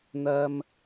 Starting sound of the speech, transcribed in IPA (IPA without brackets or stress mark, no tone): n̪